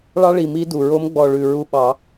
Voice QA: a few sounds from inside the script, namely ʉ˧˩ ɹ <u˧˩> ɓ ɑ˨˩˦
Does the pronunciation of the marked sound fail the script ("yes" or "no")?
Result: yes